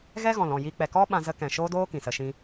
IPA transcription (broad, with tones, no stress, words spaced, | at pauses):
ɣɛ˦ɣɔ̃˨lɔ̃˦˨ ji˦k͡pɛ˧ kɔ˦ ɓã˦zə˦ kɛ̃˨ʃoː˦doː˦ kĩ˨sə˧ ʃĩ˧